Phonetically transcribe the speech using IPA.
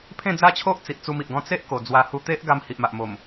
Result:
pʰ ẽ˥˧ d͡z a˦ t͡ɕʰ o˦ ʔ t͡s i˨ ʔ t͡s u˧ m i˨ ʔ ɡ ɔ̃˥˧ t͡s e˦ ʔ k o˨˩ d͡z w a˧ h u˧ t̪ e˦ ʔ ɡ a˧ m h i˨ ʔ m a˨ ʔ m o˨˩ m

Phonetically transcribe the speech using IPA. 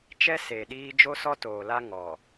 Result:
t͡ʃ ɛ˦ s e˨ ɗ iː˦ d͡ʒ o˦ s ɔ˦ t oː˨ l a˦ ŋ ɔ˨

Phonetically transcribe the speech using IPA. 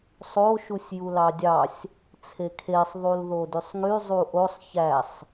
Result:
sˤ o ʃ u sʲ j u l ɑ dʲ ɑ sʲ | t͡sʰ e kʰ e sˤ ðˤ u l ð o d y sˤ ŋ y zˤ u ʔ o sˤ ç æ sˤ

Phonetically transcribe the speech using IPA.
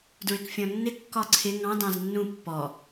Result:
d ɹ ɪ k fʲ ɔ̃ nː ɪ kː ɒ ǀʰ ɪ ŋ ɑ̃ d ɑ̃ z nː ũ pː ɔ

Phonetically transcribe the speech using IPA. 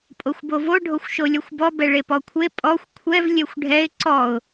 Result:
pʼ o xʷ b o v o ɖʱ o xʷ ʃ o lʲ ɔ xʷ b ɔ b ɛ ɭ e p ɔ kʷʰ e pʼ ɔ xʷ kʷʰ ɛ v lʲ ɛ xʷ ɖʱ ɛ ɪ̯ ǀ ɔ ʊ̯

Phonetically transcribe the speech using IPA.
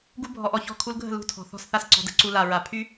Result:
ɡ u˦ bʱ ɔ˧ ʔ ɔ˧ ç ɔ̤˦˨ kʰ u˧ l ɡʱ ə̤˦˨ l ṳ˦ tʰ ɔ̤˨ θ ɔ̤˦˨ s θ a˦ s ǀ ɔ̤˧ d ə̤˦ ǀ u˧ l a˨ ɹ a˨ pʰ y˦

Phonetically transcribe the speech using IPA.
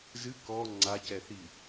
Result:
z ɨ k ɔ ŋ͡ǀ a c ɛ θ i

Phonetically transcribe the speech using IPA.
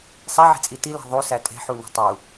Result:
sˤ e ʕ e̤ t͡sʼ i t i l æ̤ ðˤ u s æ tʼ e̤ ħ u n ṳ tˤ u

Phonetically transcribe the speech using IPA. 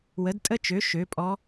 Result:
w ə˨˥ d tʼ ə˦˥ t͡ʃ ø˨˥ ʃ ø˨˥ pʼ ɔ˦˥

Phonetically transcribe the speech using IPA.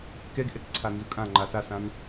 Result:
k ɛ ɡ ʔ ɛ k ǀʰ a n z ʊ kʼ ã ŋ͡ǃ a s a s ã n

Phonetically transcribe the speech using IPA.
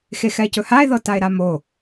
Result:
x e x ɛ e̯ c ɵ h a e̯ ð ɤ t a e̯ ɾ a m o

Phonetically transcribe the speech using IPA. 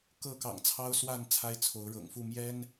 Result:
k ɤ˥˨ k ɑ̰˨˩ ŋ t͡sʰ ɑ˦ ʊ̯ s w a˥˨ n t͡sʰ a˦ ɪ̯ t͡sʰ o˨˦ ʊ̯ ɻ ɤ̰˨˩ ŋ f u˥˨ m j ɛ˦ n

